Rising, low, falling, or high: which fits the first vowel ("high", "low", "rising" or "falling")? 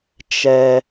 high